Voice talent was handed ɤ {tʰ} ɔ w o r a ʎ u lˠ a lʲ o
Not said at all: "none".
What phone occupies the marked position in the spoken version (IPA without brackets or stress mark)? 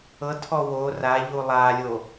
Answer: tʰ